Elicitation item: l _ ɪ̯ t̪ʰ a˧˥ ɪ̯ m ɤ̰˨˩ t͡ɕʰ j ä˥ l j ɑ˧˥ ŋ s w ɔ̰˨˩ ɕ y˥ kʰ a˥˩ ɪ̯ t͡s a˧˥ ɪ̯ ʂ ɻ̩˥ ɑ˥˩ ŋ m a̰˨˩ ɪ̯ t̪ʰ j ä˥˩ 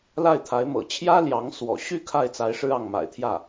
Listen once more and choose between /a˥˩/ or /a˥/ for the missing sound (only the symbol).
a˥˩